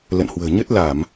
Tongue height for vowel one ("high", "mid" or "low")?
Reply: mid